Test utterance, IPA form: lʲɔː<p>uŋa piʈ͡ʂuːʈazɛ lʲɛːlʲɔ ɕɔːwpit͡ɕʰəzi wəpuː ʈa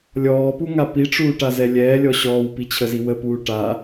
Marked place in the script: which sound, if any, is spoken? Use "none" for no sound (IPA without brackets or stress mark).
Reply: p